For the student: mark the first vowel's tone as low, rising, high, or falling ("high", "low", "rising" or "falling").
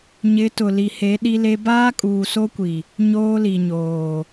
rising